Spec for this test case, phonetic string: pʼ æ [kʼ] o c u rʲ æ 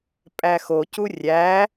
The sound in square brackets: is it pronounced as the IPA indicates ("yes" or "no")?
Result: no